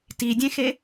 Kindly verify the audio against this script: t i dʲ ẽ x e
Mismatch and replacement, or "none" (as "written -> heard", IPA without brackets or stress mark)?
none